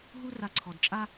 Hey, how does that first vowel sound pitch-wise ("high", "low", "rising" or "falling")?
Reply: high